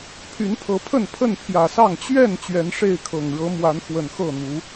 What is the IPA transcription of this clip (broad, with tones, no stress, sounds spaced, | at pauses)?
pʰ y˨˦ n pʰ ɤ˨˦ pʰ ə˥˨ n pʰ ə˥˨ n pʰ j ä˨˩ s ɑ˥˨ ŋ t͡ɕ ɥ ɛ˥˨ n t͡ɕ ɥ ɛ˨˦ n ʂ e˥˨ ɪ̯ kʰ ɤ˨˩ ŋ ɻ ɤ˨˦ m w a˨˦ n x w ə˨˩ n x ɤ˥˨ n̪ u˨˦